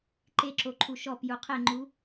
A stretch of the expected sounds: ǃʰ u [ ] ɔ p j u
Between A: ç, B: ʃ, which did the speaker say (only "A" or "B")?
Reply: B